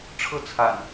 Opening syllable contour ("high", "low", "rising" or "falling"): falling